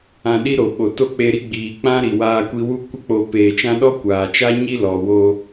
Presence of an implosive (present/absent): present